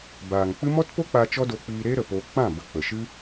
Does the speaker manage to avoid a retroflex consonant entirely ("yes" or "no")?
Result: yes